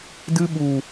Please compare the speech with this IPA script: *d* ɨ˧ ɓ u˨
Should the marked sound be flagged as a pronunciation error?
no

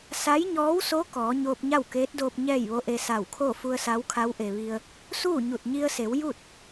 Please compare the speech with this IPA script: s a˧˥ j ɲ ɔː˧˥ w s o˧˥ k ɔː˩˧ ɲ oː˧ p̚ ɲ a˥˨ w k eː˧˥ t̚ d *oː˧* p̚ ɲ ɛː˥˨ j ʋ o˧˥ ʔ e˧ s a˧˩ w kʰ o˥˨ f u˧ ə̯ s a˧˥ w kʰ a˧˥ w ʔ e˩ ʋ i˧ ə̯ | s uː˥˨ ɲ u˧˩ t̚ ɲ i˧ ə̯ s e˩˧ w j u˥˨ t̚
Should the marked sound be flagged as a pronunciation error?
no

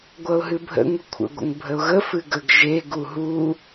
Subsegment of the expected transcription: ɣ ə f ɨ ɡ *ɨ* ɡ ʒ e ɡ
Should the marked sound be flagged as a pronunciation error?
yes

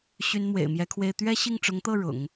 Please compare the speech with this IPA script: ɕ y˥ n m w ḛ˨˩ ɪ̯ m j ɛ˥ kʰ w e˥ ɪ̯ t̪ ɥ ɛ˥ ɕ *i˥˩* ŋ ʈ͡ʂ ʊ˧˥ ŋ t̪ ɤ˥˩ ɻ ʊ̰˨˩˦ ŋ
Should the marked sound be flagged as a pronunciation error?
no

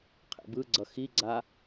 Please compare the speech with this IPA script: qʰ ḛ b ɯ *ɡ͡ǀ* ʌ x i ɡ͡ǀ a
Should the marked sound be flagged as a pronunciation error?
no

